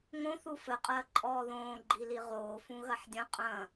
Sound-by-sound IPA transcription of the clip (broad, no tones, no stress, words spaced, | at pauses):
ŋõθu fɘqʼɐː ǃʼɔːðõː ɡ͡ǃiliʁoːfũ ɣɐħdʲɐ̃ qʼɐ̃